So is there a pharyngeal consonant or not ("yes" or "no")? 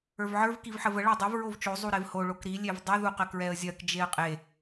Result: yes